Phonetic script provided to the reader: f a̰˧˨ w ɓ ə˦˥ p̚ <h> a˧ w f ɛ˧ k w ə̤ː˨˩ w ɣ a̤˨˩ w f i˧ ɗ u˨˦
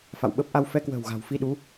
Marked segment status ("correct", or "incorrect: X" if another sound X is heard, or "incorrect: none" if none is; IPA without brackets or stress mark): incorrect: ʔ